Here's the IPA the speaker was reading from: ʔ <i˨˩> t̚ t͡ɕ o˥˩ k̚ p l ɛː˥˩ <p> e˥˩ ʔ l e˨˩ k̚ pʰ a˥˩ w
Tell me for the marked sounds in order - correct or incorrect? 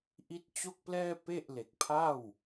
incorrect: i˦˥, correct

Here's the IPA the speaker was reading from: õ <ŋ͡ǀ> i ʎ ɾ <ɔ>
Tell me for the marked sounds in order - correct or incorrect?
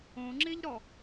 incorrect: ŋ͡ǁ, correct

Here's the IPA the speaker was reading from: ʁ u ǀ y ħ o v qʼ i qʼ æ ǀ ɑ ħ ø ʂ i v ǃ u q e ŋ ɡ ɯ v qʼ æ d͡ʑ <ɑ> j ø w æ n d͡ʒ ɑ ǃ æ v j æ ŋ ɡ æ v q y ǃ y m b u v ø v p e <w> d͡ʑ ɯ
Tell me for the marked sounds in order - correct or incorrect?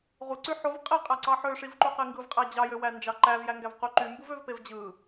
correct, incorrect: v

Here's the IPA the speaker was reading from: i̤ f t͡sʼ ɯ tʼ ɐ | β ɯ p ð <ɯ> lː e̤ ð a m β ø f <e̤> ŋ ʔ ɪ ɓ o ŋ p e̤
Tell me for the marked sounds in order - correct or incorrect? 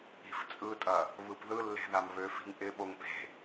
correct, incorrect: i̤

